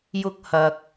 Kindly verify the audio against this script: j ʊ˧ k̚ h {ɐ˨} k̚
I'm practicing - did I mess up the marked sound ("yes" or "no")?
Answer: no